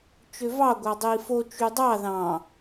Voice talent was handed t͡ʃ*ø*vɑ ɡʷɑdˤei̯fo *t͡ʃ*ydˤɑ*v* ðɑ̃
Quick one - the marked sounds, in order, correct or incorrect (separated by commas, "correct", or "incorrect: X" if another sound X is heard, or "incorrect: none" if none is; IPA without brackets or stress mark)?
correct, correct, incorrect: none